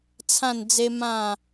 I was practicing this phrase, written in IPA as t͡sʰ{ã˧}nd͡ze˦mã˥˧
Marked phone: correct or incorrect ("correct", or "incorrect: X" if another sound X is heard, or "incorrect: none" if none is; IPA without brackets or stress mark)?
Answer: incorrect: ã˥˧